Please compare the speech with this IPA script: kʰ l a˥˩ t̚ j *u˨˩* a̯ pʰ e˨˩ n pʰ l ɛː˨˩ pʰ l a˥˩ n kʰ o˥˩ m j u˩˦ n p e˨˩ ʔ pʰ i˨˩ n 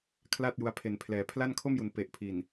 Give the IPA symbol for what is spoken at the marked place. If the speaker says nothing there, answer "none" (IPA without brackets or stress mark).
u˧